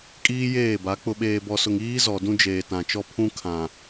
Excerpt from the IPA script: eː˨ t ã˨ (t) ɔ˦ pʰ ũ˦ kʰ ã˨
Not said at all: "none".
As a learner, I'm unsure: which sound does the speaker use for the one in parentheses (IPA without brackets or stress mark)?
t͡ʃ